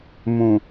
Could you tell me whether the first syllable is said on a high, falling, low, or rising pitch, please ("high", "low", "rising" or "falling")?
low